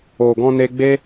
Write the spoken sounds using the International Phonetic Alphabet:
o˨ ɡ ɔ̃˧ n e˧ ɡ͡b e˦

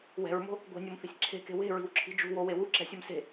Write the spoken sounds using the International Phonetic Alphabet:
w ɛ̤ ɹ m o̤ | ɡʷ e̤ nʲ o m θ i̤ sʲ ǁʰ e̤ k e̤ w e̤ ɹ i̤ w ǁʰ i̤ d͡ʒ ṳ w o w e w u ǁ ɛ̤ sʲ ɛ m s e̤

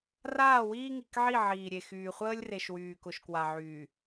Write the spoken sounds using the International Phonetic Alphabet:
r aː˦˨ w iː˦ ŋ i˨ k ʕ i˦˨ ʕ iː˨ ɾʲ e˨ x yː˨ χʷ əː˦ lʲ r e˨ ʃ w yː˨ k ʊ˨ ʃ k w a˨ ʕ yː˨

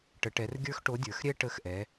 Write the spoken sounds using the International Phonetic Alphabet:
ʈ ə˩˧ ʈ ɛ˩˧ r ɡʲ ə˞˦ x ʈ o˨˥ dʲ ə˞˩˧ x ɾʲ ɛ˦ ʈ ə˨˥ x ʔ ɛ˩˧

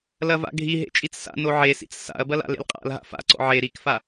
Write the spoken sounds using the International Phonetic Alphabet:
l ɐ v a̰ ɡʱ i ɦ ḛ t͡ʃʼ i t͡s s a̰ n o ʕ e s ḭ t͡s s a̰ ɐ̯ b ɐ l a̰ l ḛ l qʼ a̰ l ɦ a̰ f a̰ ǀ ɔ̰ ʕ e ɾ i k f a

